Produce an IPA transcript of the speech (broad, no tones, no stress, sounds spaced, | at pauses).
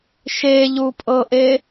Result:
ʃ e ʎ u pʼ ɤ ʔ e